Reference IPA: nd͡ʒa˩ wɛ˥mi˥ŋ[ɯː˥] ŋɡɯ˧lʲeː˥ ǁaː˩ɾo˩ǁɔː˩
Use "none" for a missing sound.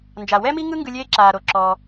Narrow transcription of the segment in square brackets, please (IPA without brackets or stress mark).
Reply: ɯ˥